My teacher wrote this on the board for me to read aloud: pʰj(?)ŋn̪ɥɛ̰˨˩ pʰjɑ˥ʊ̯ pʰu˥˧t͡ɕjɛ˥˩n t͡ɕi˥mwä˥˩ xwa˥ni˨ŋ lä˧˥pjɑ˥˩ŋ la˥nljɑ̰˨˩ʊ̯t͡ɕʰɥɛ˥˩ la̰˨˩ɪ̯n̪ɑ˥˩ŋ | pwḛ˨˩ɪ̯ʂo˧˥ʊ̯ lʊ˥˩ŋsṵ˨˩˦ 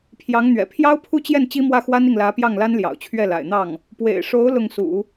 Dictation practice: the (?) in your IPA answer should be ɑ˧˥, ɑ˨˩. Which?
ɑ˧˥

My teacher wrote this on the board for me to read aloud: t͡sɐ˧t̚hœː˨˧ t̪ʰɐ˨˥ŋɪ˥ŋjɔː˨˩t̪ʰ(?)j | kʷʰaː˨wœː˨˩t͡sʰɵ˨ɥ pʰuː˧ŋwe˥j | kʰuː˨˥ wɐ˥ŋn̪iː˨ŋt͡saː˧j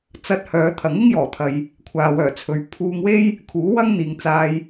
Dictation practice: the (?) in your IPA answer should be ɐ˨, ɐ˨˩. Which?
ɐ˨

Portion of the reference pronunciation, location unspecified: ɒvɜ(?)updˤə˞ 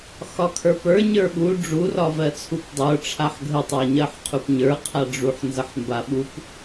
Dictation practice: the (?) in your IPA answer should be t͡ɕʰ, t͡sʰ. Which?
t͡sʰ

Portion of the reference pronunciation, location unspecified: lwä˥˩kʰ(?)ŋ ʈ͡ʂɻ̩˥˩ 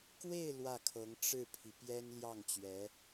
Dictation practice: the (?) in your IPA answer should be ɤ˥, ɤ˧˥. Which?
ɤ˧˥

